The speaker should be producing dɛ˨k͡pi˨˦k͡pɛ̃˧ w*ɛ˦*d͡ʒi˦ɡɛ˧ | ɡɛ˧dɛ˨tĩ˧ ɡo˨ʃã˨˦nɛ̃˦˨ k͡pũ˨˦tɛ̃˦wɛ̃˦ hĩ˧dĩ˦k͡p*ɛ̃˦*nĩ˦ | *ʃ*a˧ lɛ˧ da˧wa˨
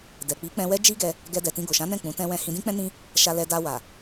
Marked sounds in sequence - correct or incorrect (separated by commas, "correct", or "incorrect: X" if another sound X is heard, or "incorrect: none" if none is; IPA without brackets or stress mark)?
correct, correct, correct